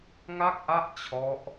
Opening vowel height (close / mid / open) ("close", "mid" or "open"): open